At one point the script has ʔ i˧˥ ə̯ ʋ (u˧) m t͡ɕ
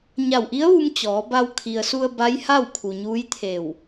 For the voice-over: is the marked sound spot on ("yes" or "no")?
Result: yes